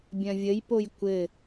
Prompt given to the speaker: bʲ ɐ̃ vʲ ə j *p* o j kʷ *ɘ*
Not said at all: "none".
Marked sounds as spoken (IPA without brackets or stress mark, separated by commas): p, ɘ